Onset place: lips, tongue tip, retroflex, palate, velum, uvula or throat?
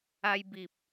palate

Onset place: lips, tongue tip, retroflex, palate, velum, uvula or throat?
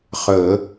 uvula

